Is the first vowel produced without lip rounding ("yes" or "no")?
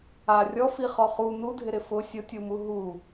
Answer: yes